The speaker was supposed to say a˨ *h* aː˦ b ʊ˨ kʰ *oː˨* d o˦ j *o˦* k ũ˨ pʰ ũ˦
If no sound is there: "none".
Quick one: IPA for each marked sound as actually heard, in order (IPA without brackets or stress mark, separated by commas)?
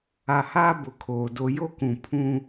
h, oː˨, o˦